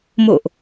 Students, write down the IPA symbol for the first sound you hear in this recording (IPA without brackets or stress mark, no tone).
m